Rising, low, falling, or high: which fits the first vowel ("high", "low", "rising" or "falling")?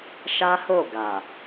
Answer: high